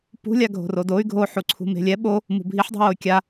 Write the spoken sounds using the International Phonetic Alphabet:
pṳlʲa ɡʱo̤rodoy̯ ɡʱoħuǀʰṳ me̤lʲɛ ɓo | mṳbʱiħdˤṳwoy̯ kʲa

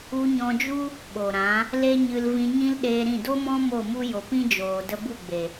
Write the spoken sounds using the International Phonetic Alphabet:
u˧ɲɔ̃˧d͡ʒu˦ | ɓo˨ɾã˨˦ | le˦ɲɨ˧lvĩ˧ ɲĩ˦lɗeː˧ɾĩ˦˨ do˦mɔ̃˦ mo˦˨mu˦ jo˨ pĩ˦d͡ʒoː˨ də˧bu˦˨ɡ͡be˨

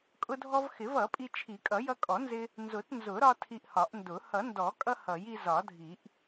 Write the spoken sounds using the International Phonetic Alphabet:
kʼʊ˧dʱɔ˧v xɪ˨˩˦vʌ˨˩˦pʼi˧ t͡ʃʰi˨˩˦kʼʌ˨˩˦jʌ˧ kʼɔ˨˩˦nzɪ˧ | nzʊ˨˩˦tnzʊ˨˩˦ɾɒ˧ tʰi˧ʔhɒ˨˩˦ʔ ndʊ˨˩˦ hʌ˨˩˦ndɔ˨˩˦kʼʌ˧ hʌ˨˩˦ji˧ zɒ˨˩˦dʱi˨˩˦ʔ

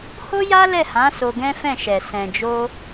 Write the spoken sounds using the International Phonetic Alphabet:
ho˦ja˦ lɛ˦˨hã˨˦ so˧ɡɛ̃˦fɛ̃˦˨ʃɛ˨ sɛ̃˨d͡ʒo˧

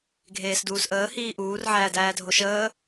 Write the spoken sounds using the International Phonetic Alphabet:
ɡʱeːsduːsʔəː hiːʔuːr ʕæːdæːdʱoʃəː

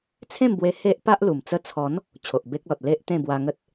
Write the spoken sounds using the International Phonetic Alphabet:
t͡sʰẽ˥˧mbwe˧ he˦ʔ pa˦ʔlu˨˩m t͡sə˧t͡sʰɔ˨˦n | t͡ɕʰo˨ʔbe˦k̚lɔ˨t̚ le˦ʔt̪ẽ˥˧ bwa˧ŋə˦t̚

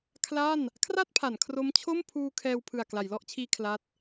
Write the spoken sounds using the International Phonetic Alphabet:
kʰla˥˩n | kʰra˥˩t̚pʰa˩˦n kʰro˦˥mt͡ɕʰo˥˩mpʰuː˧ kʰɛː˧w pʰɯ˨˩a̯kla˩˦jlɔ˥˩ʔt͡ɕʰiː˧ kʰla˦˥t̚

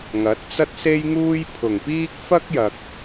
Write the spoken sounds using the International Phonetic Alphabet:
ŋɐ˨˥t̚t͡sɐ˥t̚se˥jŋuː˥j pʰʊ˨˩ŋpiː˥k̚ fɐ˥k̚jɐ˨k̚

